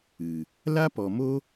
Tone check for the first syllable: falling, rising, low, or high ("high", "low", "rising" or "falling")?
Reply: low